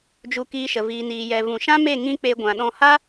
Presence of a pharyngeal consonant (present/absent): absent